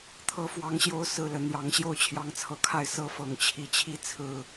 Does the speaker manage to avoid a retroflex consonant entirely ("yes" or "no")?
yes